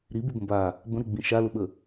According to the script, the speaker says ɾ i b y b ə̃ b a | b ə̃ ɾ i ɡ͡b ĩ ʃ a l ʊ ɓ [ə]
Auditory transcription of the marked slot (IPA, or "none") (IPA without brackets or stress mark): ə